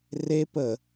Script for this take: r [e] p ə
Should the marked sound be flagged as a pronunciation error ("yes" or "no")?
no